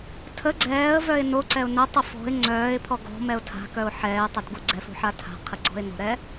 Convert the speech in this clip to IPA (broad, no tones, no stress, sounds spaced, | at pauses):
tʰ ə ɡ͡ǀ ɛː ə̯ v œ ɪ̯ n o ǀ ɛ ʊ̯ n ə tˤ ə f ɔ̤ ɪ̯ ŋ͡ǀ œː ɪ̯ pʰ ɔ ɡ ɔ̤ m ɛ ʊ̯ tʰ a̤ k œ ʊ̯ ħ ɛː ɪ̯ tˤ œ d ɡ u ɡ͡ǀ ɛ f ṳ ħ a tʰ a̤ qʰ ə ɡ͡ǀ ɔ̤ ɪ̯ n o̤ ɾ ɛ